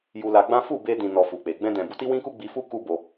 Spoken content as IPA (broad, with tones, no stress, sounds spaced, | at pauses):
j u˧ l a˧ ɡ͡b ã˦ f u˦˨ b e˧ d ĩ˨ n ɔ˨ f u˨ k͡p e˨ ɡ͡b ɛ̃˧ d ɛ̃˨ b u˧ t i˦ w ĩ˦ k u˦ ɡ͡b i˧ f u˦ k u˦ b o˧